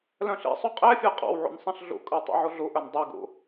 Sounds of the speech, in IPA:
lœ̃ɬḭsˤu qʼɛfʲə˞ qʼɑ̰wʕṵn sˤɛ̃ɬɮṵkʼə˞ tˤɛ̰ʕuɮuʔœn dˤɛɡṵ

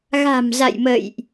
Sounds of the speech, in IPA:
ɣa̤˨˩mza̰˧˨jmə̰˧˨jʔ

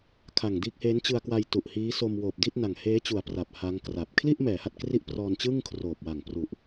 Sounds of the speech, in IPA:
kʰa˨˩ŋdiː˦˥k̚heː˦˥n t͡ɕɯ˧a̯kwa˧j tu˨˩ʔhiː˦˥ so˧m woː˨˩p̚ di˥˩t̚na˨˩ŋ heː˦˥t͡ɕu˨˩a̯ pra˨˩p̚ha˦˥ŋkra˨˩p̚ kʰli˥˩ʔmɛː˩˦ha˨˩t̚ kri˥˩ʔprɔː˧n t͡ɕɯː˥˩ŋkʰroː˨˩p̚wa˨˩ŋpru˨˩ʔ

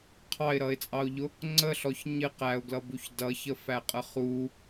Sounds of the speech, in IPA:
qʰɑɪ̯ɾʌɪ̯t͡sʼɑʊ̯ʎʊ | ŋ͡ǀəɬɔç ɲɪ qæʊ̯ɡlʌbuç dʌçəfæqʼə χu

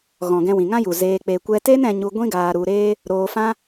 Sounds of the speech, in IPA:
ɣɔ̃˨ɡɛ̃˧ wĩ˨ŋã˦ju˨ zeː˧k͡pe˧kʷɛ˦ te˦nɛ̃˧ɲu˧ ɡʷĩ˦ɡaː˧ɾu˧ɾeː˦ | ɾoː˧fã˦

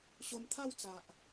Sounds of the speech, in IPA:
ɕo˧mt̪ʰa˥˧wt͡sa˨ʔ

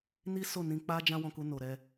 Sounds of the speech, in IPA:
ni˦ so˦˨nĩ˧k͡pa˦ d͡ʒã˦wɔ̃˧ku˧ no˨ɾɛ˧

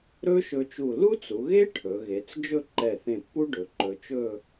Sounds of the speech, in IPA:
ɾɵ˥ʃɵ˧t͡ʃu˧˩ lu˥t͡su˩˧ɣe˥ ʈʰɵ˩˧ɣe˩˧t͡s d͡ʒɵ˥˧ǃɛ˧˩θẽ˧˩pːu˥ ɖɵ˩˧ǃɵ˧t͡ʃɵ˥˧

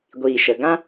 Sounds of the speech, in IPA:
ɡʷiː˨ʃə˨ ɡã˦

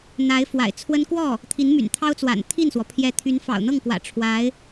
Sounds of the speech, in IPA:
n̪a˧˥ɪ̯ fwa̰˨˩ɪ̯t͡sʰwə˥n kwɔ˥˩ | t̪ʰi˧˥nmy̰˨˩nt̪ʰɑ˥ʊ̯t͡swa̰˨˩n t̪ʰi˥˩nswɔ˩ pʰjɛ˧˥ t̪ʰy˧˥nfɑ̰˨˩ʊ̯n̪ɤ˥˩ŋkwä̰˨˩ ʈ͡ʂʰwa˧˥ɪ̯

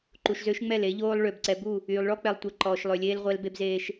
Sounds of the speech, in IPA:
ǃu˨ʃzø˦ʃŋ͡mɛ˦˨l e˦ʎoː˦lˠ ɭø˨b ǀɛ˨bu˦˨ | yː˨lˠ ɭɔ˦k͡pɛ˨lˠtʷɛ˨ ǃɔː˨ʃlˠø˨lʲeː˦l ʁʷɛ˦lbe˦bzeː˦ʃ

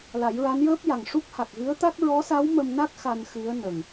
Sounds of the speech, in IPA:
la˨˩˦jɹa˧˥njəː˦˥p̚ja˨˩ŋ ʂu˦˥k̚ha˨˩k̚ɣɨ˧˥ə̯t̪a˦˥k̚ ɹɔ˧˥sa˧˥w mə˧mna˦˥k̚ xa˧nxɨ˧˥ə̯ nə˨˩ŋ

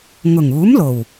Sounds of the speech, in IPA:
ŋʊ˨˩ŋuː˨˥mlo˨˩w

